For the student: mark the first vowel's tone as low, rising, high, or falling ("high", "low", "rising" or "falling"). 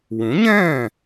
rising